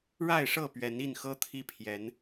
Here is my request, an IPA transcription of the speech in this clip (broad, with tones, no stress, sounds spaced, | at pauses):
ɻ a˥˨ ɪ̯ ʂ ɤ˥˨ p ɥ ɛ˨˦ n i˥˨ n x ɤ˦ t̪ʰ i˦ pʰ j ɛ˨˦ n